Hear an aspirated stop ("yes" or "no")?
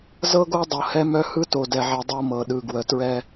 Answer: no